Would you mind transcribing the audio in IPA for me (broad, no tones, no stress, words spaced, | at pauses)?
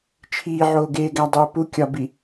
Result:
t͡ʃʰiːʕoːɡeːɡæ dˤuːpu kʲɒbi